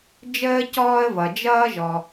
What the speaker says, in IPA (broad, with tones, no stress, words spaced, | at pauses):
d͡ʒəː˧ cɔː˧ə̯vʌ˩ d͡ʒʌː˧ʒɔ˩